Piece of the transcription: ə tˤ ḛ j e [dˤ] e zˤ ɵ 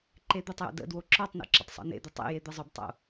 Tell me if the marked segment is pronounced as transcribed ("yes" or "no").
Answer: no